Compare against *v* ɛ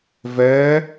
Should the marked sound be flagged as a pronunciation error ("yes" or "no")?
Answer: no